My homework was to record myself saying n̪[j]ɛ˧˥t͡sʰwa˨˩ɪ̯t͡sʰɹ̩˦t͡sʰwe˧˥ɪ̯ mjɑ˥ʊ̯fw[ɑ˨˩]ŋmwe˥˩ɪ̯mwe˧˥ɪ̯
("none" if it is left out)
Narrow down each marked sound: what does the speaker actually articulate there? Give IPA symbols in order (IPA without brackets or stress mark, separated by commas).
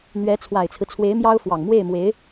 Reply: ɥ, ɑ˨˩